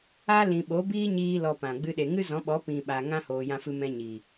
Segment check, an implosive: present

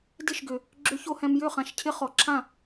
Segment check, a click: present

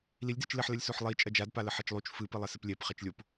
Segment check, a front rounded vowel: absent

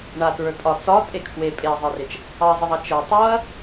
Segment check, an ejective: present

